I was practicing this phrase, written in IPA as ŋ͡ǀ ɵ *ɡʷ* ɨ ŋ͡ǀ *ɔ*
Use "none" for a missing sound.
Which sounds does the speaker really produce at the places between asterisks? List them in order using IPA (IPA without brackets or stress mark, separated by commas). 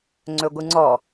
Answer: ɡʷ, ɔ